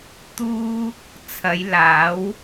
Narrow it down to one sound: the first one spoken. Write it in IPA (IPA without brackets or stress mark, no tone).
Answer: t̪